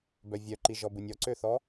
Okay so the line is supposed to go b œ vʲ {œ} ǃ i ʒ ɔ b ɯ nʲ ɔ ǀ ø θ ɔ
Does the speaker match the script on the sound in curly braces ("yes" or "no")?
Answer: yes